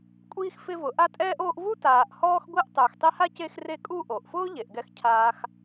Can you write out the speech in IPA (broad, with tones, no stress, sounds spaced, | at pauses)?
kʷʼ iː˥ x f ɪ˦ v ʊ˨ ʔ a˦ tʼ ɛː˦ ʔ oː˦ ʔ v u˥ t aː˨ ʔ h ɔː˦ x ɡʷ e˦ ʔ tˤ ʊː˨ x tˤ i˦ h a˥ c e˦ x r e˦ kʼ u˦ ʔ o˩ ʔ f ʊː˥ ʎ e˩ ʔ ɡ ɛ˨ x cʰ aː˨ x